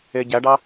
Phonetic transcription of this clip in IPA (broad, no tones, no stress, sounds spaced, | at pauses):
e ɟ æ ɖ ɑ